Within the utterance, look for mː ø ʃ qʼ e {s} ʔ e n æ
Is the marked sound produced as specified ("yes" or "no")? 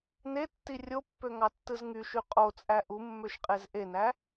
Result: no